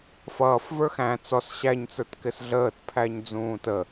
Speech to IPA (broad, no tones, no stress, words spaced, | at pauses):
fʌːf və˞xæ̃ t͡sɔs ɕæɲt͡sə˞t kɪsɮəːtpʰæɲ d͡zũːtə